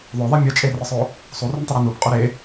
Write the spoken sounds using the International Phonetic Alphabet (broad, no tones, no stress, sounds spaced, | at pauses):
ðˤ o ðˤ e mʲ ə t͡ʃʼ e r ə sˤ o | sˤ u r u n tˤ ə ɾ e n u p qʼ o ɾ e